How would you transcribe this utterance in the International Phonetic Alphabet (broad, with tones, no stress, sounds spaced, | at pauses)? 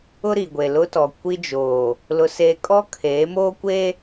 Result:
ʊ˦ ɾ i˨ ɡʷ e˨ l ʊ˦ t ɔ˨ kʷ i˦ d͡ʒ oː˨ | l ʊ˦ s eː˦ kʼ ɔ˦ kʰ eː˨˦ m oː˦ kʷ e˦